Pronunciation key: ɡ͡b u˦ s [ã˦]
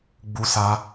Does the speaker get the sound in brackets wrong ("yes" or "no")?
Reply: yes